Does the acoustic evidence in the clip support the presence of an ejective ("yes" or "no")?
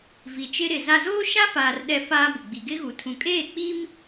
yes